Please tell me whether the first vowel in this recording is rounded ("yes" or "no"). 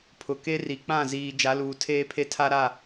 yes